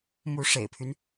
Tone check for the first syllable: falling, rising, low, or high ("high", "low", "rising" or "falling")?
rising